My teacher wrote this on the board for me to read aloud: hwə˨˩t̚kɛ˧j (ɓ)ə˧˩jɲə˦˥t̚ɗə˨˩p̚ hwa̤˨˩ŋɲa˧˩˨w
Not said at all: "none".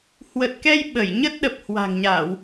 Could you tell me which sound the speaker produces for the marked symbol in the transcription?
ɓ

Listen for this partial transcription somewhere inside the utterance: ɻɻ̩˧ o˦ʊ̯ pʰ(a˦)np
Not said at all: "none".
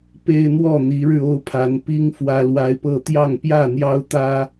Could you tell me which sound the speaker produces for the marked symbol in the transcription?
a˨˦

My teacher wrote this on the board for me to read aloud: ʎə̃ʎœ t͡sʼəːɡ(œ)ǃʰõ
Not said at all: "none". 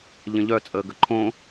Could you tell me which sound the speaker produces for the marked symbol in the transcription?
ə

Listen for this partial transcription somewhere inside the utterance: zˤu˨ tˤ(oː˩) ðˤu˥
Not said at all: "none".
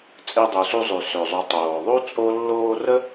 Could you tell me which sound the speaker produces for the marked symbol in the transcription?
oː˩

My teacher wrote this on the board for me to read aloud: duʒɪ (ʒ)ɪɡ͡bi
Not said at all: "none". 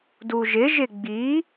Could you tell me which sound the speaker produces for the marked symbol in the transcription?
ʒ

